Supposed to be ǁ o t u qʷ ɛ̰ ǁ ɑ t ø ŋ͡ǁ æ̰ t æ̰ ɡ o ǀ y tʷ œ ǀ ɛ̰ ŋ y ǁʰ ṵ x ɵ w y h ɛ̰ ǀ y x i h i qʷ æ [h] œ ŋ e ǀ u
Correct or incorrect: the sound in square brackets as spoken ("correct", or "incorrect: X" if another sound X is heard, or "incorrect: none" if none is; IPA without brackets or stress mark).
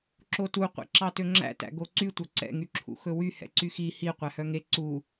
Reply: correct